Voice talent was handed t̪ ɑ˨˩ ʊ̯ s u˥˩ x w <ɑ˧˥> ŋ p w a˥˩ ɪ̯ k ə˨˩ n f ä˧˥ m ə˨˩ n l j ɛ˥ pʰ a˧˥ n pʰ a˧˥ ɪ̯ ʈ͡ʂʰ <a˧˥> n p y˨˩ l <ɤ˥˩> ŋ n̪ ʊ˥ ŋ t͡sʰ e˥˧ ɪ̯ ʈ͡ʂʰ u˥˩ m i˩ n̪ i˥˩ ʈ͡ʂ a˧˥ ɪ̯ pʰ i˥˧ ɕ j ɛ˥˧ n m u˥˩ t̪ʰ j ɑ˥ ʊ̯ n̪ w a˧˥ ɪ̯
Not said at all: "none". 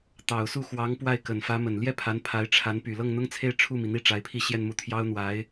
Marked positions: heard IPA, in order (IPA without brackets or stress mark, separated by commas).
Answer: ɑ˧˥, a˧˥, ɤ˥˩